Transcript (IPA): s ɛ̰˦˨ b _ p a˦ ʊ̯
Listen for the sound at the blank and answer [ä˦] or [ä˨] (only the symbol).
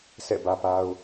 ä˦